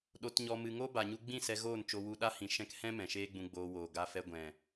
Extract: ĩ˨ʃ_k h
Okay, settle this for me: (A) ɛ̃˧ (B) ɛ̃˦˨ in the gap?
A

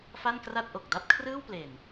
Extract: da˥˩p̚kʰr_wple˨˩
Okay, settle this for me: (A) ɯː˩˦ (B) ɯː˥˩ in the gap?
B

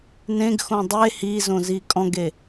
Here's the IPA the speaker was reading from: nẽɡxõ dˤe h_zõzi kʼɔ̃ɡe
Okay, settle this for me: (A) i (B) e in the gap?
A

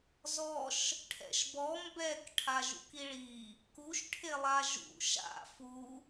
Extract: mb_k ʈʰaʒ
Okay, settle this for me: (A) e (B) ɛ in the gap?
B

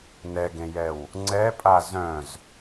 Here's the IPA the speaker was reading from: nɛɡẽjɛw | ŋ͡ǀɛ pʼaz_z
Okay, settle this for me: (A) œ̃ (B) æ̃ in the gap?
A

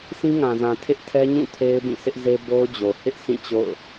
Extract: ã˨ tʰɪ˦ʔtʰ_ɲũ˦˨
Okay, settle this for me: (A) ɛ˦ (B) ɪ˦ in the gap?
A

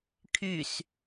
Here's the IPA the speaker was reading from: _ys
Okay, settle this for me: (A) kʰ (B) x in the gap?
A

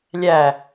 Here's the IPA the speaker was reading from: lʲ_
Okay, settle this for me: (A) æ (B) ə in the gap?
A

